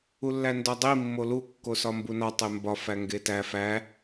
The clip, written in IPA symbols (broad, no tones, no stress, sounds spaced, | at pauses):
u lː æ n d ɒ dˤ i mː o l u kː o s ɒ m b u n ɒ tˤ e m b ɒ f æ ŋ ɡ e t æ f æ